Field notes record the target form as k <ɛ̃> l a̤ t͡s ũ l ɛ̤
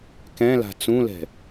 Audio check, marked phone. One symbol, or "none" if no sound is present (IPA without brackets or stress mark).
ɛ̃